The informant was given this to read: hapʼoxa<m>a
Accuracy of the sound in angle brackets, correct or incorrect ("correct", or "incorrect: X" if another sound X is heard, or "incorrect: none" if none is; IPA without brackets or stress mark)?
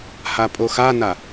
incorrect: n